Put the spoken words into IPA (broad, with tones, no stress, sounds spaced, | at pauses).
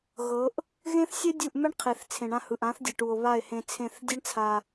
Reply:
ɣ ɤ˨˦ ʔ | ɣ ẽ˦ θ sʲ ɛ˦ dʲ u˦˨ ʔ m ɛ˦ ɳ qʰ e˨ θ t͡sʰ ẽ˨ ɳ ã˧ h ɯ˨ ʔ ã˨˦ θ dʲ e˨ ʈ u˨ o̯ β a˦˨ e̯ h ẽ˧ t͡sʰ ẽ˦˨ θ dʲ e˦ ɳ t͡sʰ a˧